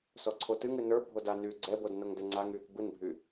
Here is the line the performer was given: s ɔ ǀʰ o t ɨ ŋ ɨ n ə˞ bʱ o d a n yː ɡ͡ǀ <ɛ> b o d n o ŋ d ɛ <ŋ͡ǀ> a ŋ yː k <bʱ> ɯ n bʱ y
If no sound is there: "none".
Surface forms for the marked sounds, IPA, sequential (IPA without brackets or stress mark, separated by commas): ɛ, ŋ͡ǀ, b